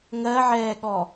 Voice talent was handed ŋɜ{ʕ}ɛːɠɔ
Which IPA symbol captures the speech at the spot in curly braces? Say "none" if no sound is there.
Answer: ʕ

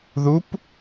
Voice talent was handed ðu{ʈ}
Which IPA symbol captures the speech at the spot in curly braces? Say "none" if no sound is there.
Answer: p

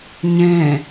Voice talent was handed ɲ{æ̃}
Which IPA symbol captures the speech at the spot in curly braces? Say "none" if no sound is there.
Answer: ɛ̃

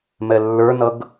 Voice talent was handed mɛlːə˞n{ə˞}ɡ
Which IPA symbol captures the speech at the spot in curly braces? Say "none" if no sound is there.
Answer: ʌ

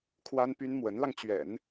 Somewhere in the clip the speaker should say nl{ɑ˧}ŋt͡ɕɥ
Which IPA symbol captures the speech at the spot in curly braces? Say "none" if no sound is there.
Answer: ɑ˧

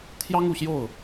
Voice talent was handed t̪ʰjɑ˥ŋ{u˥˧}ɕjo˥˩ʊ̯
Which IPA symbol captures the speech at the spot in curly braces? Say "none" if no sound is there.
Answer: u˨˩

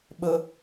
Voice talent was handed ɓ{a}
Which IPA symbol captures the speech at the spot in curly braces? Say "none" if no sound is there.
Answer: ə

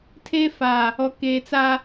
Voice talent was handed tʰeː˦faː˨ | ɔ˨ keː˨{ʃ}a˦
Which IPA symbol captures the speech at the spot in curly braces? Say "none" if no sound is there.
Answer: t͡s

